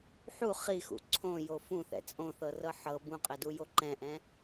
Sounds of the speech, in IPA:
ħu χixṵ ǀʰõjo fũθɛ̰ t͡sʼõθɤrɤ ħɤ bũqʼɛdujo ǃɛ̃ʔɛ̃

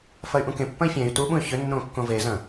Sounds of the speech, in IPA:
fɐy̯ʔũkẽpːɐ̃i̯ fʲẽy̯ tuɓũy̯ çʏ nːõkːõvezɐ̃

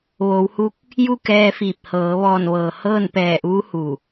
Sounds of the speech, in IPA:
ʋoː˩˧whu˧˥k̚ | ju˥˨kɛː˧fiː˧˩p̚ hɤː˩˧ ʋɔː˧˩nʋɤː˩ hɤː˥˨n pɛː˧˩ʔuː˧˥ hu˧˩

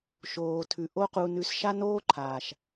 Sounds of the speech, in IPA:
ʃoː˨tʰʉ˨ ʔo˦qu˧nʉ˧s ʃa˦noː˦ǃʰaː˨ʃ

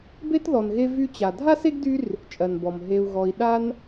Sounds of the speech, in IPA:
be˥tðɔ˨nɣe˦ vy˦t͡ɕa˨ dʱa˥se˥ɡdy˦r | t͡ʃʼɜ˩nbɔ˩m ɦe˨u̯ɣɔ˨i̯ ɗa˦n

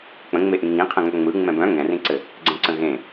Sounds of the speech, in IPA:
k͡pə̃ŋ͡meʔĩ ŋĩ qʰə̃ŋœŋ͡mɯ ŋ͡mɛ̃bœ̃ ŋɛ̃rĩǀɘ | ɡ͡ǀɛ̃ǀə̃ɣẽ

